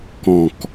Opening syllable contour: low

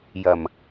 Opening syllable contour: low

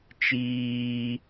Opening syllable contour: high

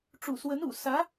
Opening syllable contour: low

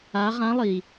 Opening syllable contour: rising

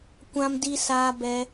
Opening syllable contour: high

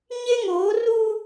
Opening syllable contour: high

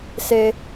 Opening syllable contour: low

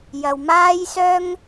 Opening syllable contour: low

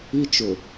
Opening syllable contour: high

